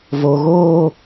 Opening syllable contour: low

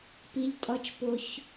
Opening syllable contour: high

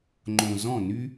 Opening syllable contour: low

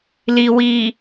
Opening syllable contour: low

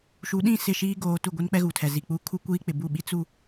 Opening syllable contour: rising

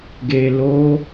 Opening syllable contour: low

